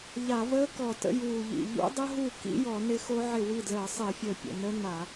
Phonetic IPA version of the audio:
ʎ a˧˩˧ v əː˦˥ k ɔ˧˩ t ə̰˦˥ j uː˧˩ ʎ ḭ˧˩ ʎ ṵ˦˥ dˤ ə˦˥ ɦ u˥˩ k ḭ˦˥ j ɔ˧˩˧ n ɪ˦˥ x o˦˥ ʕ ɪ˥˩ w i˥˩ d l əː˧˩˧ sˤ ɪː˧˩˧ fʲ əː˧˩ pʲ ə̰˧˩ n ə˦˥ n a˧˩˧

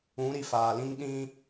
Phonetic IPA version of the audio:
ũ˨˦ ɾ i˨ f aː˨ l ĩ˦ ŋ ɗ ĩ˦

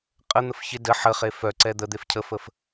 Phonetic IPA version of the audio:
qʼ ə n̪ ə f ç ɪ d ə ħ ə χ e f œ ǀ ɛ d̪ ə d̪ e f cʰ ə f ə f

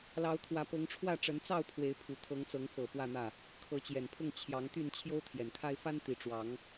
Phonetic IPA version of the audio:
l ɑ˨˦ ʊ̯ t̪ʰ w ä˨˦ p ɤ˨˦ ŋ ʈ͡ʂʰ w ä˥˨ ʈ͡ʂ ə˨˦ n t͡s ɑ˥˨ ʊ̯ pʰ w e˨˦ ɪ̯ pʰ u˨˩ t̪ʰ ɤ˨˦ ŋ t͡s ɤ˨˦ ŋ f ɤ˨˩ p w ä˥˨ n̪ ä˥˨ | kʰ ɤ˨˦ t͡ɕ j ɛ˨˩ n pʰ ʊ˥˨ ŋ t͡ɕʰ j ɑ˨˦ ŋ t̪ y˥˨ n t͡ɕʰ j o˦ ʊ̯ t̪ʰ j ɛ˨˩ n kʰ a˦ ɪ̯ f a˦ n t̪ i˨˩ ʈ͡ʂ w ɑ˨˦ ŋ

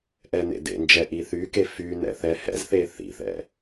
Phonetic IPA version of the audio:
ʔ ɛ n ḛ d ḛ n d͡ʒ ɛ ʔ i θ y k e f y n ɛ̰ θ ɛ h ɛ̰ z θ e θ ḭ θ ɛ̰

